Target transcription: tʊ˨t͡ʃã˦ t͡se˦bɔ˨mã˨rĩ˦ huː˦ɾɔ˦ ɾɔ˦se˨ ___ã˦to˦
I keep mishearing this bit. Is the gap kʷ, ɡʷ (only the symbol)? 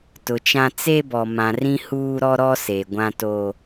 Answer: ɡʷ